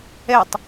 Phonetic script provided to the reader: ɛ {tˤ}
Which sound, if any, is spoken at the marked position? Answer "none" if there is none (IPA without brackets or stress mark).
tˤ